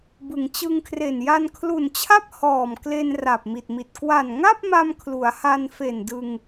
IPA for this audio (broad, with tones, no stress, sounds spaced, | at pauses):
b ɯ˩˦ ŋ t͡ɕ ɯ˧ ŋ kʰ r e˨˩ n j a˧ n kʰ l u˨˩ n t͡ɕʰ a˥˩ p̚ h ɔː˨˩ m k l e˧ n r a˨˩ p̚ m i˨˩ t̚ m i˨˩ t̚ k w a˨˩ n ŋ a˥˩ p̚ m a˧ m kʰ l u˩˦ a̯ h a˧ n f e˨˩ n d ɯ˧ ŋ